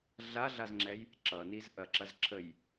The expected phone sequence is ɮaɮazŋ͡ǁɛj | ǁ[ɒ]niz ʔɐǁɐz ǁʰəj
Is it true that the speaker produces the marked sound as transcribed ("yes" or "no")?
no